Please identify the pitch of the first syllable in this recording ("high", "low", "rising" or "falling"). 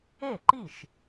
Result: falling